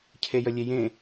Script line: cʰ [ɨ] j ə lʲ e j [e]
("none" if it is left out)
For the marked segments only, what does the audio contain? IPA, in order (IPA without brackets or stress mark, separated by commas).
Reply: e, ẽ